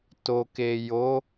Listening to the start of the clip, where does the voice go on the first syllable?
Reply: low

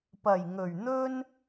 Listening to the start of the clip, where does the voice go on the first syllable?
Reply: low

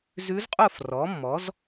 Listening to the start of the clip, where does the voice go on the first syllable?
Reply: rising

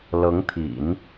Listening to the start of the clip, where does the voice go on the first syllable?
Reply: rising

